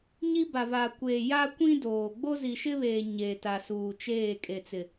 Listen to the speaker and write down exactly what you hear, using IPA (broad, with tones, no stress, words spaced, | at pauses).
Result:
ɲi˦ba˨vaː˨kʷeː˨ ja˦kʷĩ˦doː˨ ɡ͡bo˦zi˨ʃɪ˦βeː˨ ɲe˨ta˨suː˨t͡ʃeː˦˨ kʼe˨t͡sɪ˨